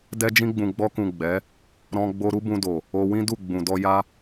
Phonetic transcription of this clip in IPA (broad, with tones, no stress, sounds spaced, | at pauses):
d ɛ˦ d͡ʒ ĩ˧ ɡ͡b ũ˨ ɡ͡b ɔ˧ k ũ˨ ɡ͡b ɛ˨˦ | ɾ ɔ̃˧ ɡ͡b o˧ ɾ u˦ b ũ˧ d o˨ | o˧ w ĩ˦ d u˦˨ ɡ͡b ũ˨ d ɔ˧ j a˦